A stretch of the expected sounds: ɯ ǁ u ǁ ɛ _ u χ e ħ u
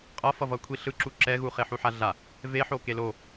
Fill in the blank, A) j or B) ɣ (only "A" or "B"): B